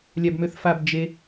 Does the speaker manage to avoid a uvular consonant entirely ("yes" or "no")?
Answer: yes